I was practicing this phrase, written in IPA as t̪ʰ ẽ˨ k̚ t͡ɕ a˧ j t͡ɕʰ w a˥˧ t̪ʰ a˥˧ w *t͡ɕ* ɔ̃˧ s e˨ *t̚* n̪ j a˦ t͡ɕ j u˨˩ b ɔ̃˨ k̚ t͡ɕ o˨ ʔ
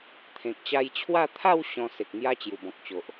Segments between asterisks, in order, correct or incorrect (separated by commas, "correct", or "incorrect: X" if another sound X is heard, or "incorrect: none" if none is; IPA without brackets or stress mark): incorrect: ɕ, incorrect: k̚